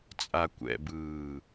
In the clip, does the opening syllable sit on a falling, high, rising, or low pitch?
low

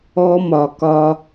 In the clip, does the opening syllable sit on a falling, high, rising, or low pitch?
high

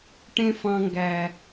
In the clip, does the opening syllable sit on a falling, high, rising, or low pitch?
high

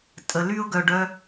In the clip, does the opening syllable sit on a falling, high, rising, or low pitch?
low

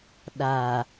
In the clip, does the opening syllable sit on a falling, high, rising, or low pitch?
low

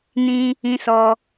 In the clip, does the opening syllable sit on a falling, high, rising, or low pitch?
high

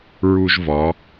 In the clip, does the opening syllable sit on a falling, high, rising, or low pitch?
high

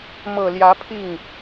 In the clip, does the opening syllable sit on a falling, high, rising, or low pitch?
low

